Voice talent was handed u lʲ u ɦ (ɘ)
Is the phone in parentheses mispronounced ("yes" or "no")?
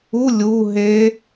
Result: yes